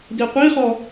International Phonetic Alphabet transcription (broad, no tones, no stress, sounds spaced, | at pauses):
d i qʷ i χ ɔ